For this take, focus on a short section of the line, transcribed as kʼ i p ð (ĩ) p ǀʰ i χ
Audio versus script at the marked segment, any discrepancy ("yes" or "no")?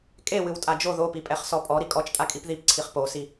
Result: yes